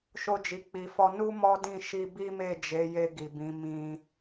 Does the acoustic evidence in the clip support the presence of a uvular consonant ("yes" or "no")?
no